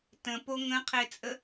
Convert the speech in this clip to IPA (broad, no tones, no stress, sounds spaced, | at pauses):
t ə̃ p o ŋ ə̃ qʰ e t͡sʼ ə